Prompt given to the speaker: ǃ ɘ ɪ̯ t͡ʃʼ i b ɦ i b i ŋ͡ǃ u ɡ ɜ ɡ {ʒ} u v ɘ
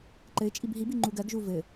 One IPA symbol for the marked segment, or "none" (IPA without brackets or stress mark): ʒ